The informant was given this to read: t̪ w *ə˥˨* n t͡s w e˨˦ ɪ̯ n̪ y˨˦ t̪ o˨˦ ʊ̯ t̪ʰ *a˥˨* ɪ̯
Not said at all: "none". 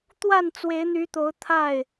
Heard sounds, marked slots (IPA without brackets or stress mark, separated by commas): a˥˨, a˥˨